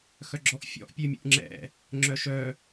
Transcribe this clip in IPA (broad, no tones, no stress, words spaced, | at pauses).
xœɡ͡ǁɔʔfʲɔ̰ʔ pʲømʲṵʔŋ͡ǁɛ̰ | ŋ͡ǁœʃœ